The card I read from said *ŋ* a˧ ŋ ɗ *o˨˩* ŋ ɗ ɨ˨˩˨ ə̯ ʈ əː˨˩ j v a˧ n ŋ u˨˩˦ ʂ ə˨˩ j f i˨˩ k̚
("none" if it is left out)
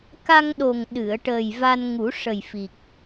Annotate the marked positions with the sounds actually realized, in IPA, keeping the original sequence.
k, o˨˩

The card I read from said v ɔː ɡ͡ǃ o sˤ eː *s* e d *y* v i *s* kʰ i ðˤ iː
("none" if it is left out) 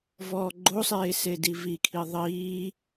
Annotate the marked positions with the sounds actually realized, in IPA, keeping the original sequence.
s, i, none

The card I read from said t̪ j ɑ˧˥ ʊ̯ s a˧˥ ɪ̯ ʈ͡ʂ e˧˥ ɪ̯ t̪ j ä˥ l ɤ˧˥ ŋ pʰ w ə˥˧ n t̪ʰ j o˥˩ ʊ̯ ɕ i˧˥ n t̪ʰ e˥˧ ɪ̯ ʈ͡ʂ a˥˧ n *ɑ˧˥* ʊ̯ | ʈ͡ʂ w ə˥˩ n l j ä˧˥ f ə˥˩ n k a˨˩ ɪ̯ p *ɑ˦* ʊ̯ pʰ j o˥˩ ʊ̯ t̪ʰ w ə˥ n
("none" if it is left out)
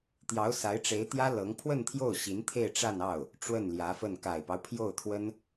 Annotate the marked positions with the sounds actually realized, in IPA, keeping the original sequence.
ɑ˥˩, ɑ˦

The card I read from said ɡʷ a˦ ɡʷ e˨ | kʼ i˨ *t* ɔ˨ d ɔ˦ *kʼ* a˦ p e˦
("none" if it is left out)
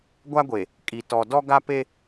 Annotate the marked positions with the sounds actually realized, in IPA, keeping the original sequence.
t, ɡ

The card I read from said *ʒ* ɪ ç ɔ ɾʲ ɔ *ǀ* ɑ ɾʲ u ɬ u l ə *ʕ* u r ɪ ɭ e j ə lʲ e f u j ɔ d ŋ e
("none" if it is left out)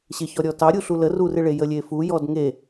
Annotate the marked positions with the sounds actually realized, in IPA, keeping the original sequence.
ɕ, t, r

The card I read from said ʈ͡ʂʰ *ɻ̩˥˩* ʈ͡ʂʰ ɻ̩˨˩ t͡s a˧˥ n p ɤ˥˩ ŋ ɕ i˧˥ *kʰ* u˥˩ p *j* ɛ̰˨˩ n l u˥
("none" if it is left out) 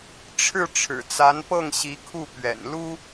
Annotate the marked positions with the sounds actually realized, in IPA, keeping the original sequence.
ɻ̩˥˩, kʰ, ɥ

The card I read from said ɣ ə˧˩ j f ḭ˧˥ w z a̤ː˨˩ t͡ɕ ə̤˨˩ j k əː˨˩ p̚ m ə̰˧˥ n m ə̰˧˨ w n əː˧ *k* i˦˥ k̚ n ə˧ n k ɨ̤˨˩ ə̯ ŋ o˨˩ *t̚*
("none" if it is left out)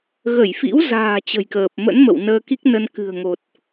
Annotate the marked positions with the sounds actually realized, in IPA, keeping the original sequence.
k, t̚

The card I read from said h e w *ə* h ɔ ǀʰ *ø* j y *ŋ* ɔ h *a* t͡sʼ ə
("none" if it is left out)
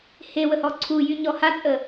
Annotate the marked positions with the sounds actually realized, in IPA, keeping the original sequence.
ə, u, ɲ, a

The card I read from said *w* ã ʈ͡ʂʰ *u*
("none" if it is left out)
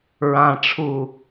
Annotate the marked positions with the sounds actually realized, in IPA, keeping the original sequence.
ɹ, u

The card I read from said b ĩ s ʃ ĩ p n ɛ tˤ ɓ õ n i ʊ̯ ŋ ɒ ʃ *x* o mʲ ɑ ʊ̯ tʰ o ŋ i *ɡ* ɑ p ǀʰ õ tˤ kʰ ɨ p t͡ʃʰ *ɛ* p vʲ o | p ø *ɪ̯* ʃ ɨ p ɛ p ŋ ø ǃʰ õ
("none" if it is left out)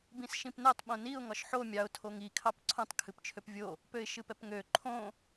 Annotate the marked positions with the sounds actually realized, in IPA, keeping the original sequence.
ħ, kʰ, ø, ɪ̯

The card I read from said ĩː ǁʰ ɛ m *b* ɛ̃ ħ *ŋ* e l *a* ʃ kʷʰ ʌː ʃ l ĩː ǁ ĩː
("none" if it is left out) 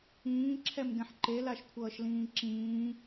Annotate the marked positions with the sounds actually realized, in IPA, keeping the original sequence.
ɡ, ǃ, a

